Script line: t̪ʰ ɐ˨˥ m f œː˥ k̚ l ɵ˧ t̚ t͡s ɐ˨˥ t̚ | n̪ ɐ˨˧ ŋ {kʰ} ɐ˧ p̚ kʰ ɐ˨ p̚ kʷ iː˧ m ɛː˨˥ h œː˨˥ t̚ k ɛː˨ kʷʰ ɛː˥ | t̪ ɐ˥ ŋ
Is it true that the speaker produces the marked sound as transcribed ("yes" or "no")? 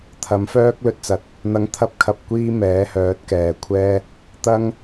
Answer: no